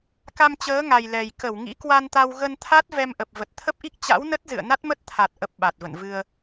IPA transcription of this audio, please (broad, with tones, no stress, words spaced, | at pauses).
ka˧mt͡ɕəː˨˦ŋa˨˩j lɛ˨˩j kə˧˩wŋḭ˧˥kwa˧nt̪a˧w ɣə˧nt̪ʰa˦˥t̚ vɛ˧mʔə˨˩p̚ və˨˩t̚t̪ʰə˦˥p̚ʔi˦˥k̚ t͡ɕa̰˧˥wnə˦˥t̚zɨ̰˧˨ə̯ na˦˥t̚mə˦˥t̚t̪ʰa˨˩t̚ ʔə˨˩p̚ ɓa˨˩t̚və̰˧˨nvɨ˧ə̯